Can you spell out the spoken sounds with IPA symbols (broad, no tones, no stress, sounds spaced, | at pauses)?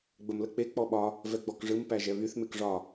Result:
ɡ͡b ə m l ə k͡p e k͡p ɔ ɓ ɒ | v ɛ ɡ͡b ɔ k ʐ ɯ m p æ ʒ ɛ β y θ m e k ʐ ɒ